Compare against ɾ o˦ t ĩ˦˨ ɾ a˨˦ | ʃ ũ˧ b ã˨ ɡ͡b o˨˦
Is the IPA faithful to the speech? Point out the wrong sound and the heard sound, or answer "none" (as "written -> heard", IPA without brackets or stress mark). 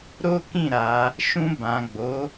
t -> k